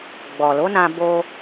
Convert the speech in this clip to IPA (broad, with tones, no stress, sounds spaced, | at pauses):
ɡ͡b ɔ˨ l o˨˦ n ã˧ b o˧